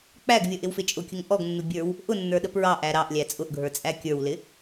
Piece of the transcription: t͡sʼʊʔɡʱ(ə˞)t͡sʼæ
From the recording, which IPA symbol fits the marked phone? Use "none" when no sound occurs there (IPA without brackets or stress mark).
ə˞